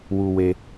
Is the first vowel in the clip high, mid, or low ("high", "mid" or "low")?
high